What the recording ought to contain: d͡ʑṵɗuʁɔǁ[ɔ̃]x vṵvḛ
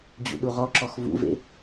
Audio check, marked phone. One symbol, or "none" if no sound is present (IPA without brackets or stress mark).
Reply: ɔ